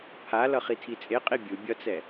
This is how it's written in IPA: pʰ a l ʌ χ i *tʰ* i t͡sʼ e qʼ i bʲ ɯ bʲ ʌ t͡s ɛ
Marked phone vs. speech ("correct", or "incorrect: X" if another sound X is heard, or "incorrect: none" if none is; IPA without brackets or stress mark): correct